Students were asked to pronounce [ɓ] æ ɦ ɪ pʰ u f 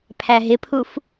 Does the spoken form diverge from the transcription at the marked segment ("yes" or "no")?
yes